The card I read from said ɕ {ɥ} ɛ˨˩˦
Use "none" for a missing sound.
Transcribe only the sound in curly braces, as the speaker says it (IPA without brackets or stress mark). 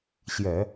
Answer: j